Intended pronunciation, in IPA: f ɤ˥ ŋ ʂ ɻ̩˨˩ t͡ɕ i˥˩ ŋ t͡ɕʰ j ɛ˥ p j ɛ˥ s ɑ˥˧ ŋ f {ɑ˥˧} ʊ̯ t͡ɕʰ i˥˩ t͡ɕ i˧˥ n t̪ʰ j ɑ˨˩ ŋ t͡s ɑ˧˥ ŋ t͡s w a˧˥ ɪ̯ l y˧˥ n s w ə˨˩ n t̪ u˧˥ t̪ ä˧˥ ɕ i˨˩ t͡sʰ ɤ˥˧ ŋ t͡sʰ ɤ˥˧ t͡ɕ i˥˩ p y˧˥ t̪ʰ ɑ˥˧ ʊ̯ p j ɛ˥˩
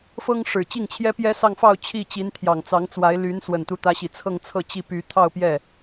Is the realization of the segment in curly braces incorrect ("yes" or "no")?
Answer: no